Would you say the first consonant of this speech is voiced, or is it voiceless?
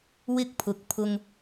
voiced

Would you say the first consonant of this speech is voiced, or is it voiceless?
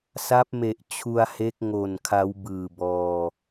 voiceless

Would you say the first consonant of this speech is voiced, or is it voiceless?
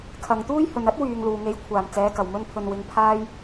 voiceless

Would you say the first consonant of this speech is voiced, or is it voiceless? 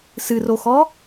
voiceless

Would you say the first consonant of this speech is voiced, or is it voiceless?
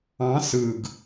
voiceless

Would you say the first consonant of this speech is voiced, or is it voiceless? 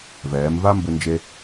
voiced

